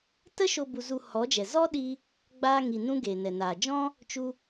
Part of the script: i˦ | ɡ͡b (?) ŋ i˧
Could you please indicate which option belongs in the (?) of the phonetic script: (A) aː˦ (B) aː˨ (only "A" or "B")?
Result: A